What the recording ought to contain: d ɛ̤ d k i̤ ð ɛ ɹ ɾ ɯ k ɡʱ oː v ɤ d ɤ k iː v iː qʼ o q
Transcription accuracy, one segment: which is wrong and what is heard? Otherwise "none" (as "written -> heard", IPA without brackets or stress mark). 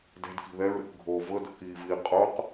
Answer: none